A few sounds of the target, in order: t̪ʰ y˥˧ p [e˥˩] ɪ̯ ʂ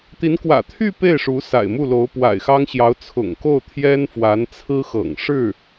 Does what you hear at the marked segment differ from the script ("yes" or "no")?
no